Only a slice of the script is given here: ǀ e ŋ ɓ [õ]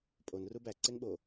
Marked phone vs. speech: incorrect: o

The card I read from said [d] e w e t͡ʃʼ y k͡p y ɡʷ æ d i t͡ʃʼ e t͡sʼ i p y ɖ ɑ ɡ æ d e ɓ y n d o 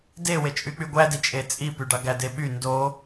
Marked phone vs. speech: correct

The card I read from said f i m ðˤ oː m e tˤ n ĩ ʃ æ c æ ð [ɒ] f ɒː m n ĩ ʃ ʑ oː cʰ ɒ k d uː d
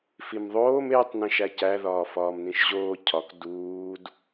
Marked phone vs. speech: incorrect: ɒː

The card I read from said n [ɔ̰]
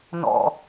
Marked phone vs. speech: correct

